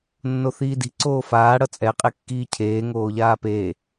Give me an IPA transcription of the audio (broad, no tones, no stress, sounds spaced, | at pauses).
nː o θ iː d i̤ ǀ oː f aː ɽ ʌ t͡sʼ ɛ qʼ e kː iː cʰ eː ŋ oː ʎ aː p eː